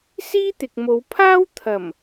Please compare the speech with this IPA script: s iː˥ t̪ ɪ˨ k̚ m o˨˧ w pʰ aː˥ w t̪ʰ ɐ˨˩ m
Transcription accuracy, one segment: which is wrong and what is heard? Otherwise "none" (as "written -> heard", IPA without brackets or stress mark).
none